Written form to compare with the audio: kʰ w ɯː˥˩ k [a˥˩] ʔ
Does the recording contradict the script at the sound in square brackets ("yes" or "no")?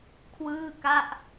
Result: no